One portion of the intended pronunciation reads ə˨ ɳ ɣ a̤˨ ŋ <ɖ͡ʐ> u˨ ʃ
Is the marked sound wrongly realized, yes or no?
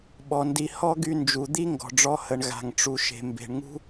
yes